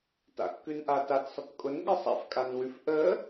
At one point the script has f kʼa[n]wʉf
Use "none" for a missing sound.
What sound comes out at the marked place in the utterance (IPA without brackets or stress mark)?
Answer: n